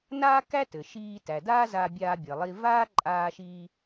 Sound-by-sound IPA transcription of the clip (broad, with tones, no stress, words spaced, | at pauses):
naː˥kæ˥tɘ˩ʃiː˧ tæ˩daː˥zaː˧ bʲaː˧bʲɘː˩lˠiː˧ vaː˥ ǃʼaː˧ʃiː˧